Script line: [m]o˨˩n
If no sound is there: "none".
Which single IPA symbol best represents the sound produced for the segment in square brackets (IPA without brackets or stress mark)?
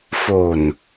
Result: f